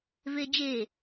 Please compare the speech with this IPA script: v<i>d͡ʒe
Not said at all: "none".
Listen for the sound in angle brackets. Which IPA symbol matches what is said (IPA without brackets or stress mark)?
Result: e